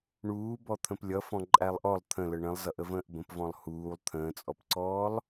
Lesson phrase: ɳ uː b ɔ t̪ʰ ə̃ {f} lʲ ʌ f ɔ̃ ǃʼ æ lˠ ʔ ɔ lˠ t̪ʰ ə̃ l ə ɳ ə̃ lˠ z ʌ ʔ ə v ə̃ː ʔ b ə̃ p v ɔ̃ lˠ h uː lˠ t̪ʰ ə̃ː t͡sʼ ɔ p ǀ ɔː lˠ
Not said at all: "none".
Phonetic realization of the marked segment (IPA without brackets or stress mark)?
p